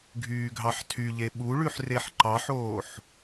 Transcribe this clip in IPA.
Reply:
ɡʱyːɡʱɑħtʰyʎe ɓuɭʉħ reħǃɑħoːħ

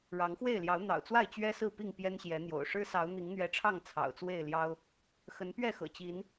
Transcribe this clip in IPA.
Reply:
ɻɑ˨˦ŋxwe˥˨ɪ̯ljɑ˨˦ʊ̯ n̪ɑ̰˨˩ʊ̯t͡swa˥˨ɪ̯ t͡ɕɥɛ˦sɹ̩˥˨pi˥˨ŋ pjɛ˦nɕjɛ˨˦n̪jo̰˨˩ʊ̯ ʂɻ̩˦sɑ˨˦ʊ̯ n̪i˨˦ŋn̪ɥɛ˨˦ʈ͡ʂʰɑ˥˨ŋ t͡sʰɑ̰˨˩ʊ̯t͡swe˥˨ɪ̯ljɑ˦ʊ̯ | xə˨˦npɥɛ˥˨xɤ̰˨˩ t͡ɕi˨˦n

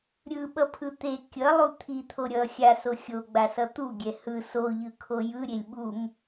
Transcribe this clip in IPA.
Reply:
ɾʲɯɓʌpʰɯ t̪e kʲʌlˠu t̪ʰit̪ʰo ɾʲʌ xʲaso xʲoɡ͡basʌ t̪uɡʲɛ hɯ soʎɯkʰo jɯɾʲelʲ ɓum

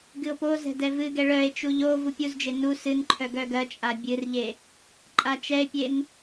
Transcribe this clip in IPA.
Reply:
ɡɨo̯pozɛ̤ dɛvɨɡɛ ɭœe̯t͡ʃu ʎo vupʲuzd͡ʒe nu sɨnǃʰœ ɡœɡɜt͡ʃʼa bʲɨrʎe | ǃʼat͡ʃɛe̯pʲen

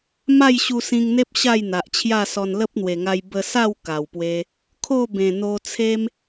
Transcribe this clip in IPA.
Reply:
ma˥˧jɕu˧sĩ˧ŋn̪e˦p̚ ɕa˥˧jn̪a˨ʔt͡ɕʰja˥˧sɔ˧n lə˦p̚n̪we˨˩ŋa˧j bə˧sa˥˧w ka˨˩wpwe˧ | kʰo˥˧bẽ˨˩ n̪o˧ t͡sʰe˦m

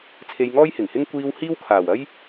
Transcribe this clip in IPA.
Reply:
t͡sʰe˧jŋɔː˥jhɪ˨˩ŋhɪ˥ŋ kʷiː˧w hiː˥wkʰaː˨˩w ɐ˥j

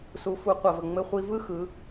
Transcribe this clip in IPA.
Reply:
su˩˧fu˩˧ qʷɜ˩və˩ ŋ͡mɘ˧χʷi˧ vɯ˥xɯ˩˧

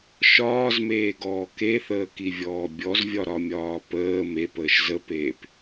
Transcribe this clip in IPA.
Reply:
ʃɒːzmeːɡɔː keθəːkivʲɔː bʲɔzvʲɒɾɒmʲɒː pəː mepəːʃ zəpeːp

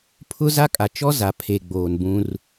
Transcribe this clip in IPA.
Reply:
pʰʊ˦za˦kʼa˨ t͡ʃɔ˦za˨pʰe˨ɡ͡boː˨n bũ˦r

